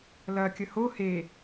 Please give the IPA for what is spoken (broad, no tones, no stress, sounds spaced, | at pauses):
l ɐ kʲ ə h o h e